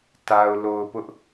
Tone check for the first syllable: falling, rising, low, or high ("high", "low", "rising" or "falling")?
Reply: low